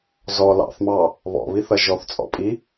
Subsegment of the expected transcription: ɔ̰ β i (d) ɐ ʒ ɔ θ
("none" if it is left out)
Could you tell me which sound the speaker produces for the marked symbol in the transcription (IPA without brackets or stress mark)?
θ